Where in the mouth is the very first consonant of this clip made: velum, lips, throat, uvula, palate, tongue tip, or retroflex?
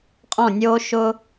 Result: uvula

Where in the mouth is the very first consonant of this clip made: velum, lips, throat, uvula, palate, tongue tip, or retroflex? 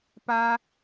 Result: lips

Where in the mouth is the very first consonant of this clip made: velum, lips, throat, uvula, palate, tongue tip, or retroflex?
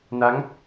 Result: tongue tip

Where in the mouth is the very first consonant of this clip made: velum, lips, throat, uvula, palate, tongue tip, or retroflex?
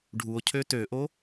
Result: retroflex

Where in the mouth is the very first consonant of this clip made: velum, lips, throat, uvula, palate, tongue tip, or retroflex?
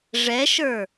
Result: retroflex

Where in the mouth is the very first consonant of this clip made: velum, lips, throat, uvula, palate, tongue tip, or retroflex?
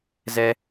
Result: tongue tip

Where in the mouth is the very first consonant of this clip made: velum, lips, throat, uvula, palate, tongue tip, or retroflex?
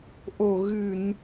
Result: throat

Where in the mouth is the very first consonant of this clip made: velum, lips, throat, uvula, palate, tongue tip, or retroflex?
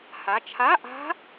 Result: throat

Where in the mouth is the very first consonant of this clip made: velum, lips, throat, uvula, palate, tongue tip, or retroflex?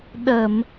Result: tongue tip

